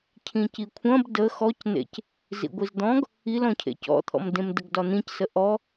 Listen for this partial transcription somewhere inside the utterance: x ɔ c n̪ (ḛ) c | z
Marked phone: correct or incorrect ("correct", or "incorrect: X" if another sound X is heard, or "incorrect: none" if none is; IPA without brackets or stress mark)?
correct